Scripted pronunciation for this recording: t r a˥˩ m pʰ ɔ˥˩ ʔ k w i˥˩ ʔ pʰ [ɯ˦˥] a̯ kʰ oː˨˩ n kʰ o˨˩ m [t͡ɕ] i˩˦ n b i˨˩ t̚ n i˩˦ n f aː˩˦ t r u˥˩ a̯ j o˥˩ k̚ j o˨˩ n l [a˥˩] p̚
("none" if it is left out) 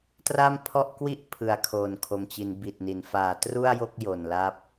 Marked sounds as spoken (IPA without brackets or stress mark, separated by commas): ɯ˩˦, t͡ɕ, a˥˩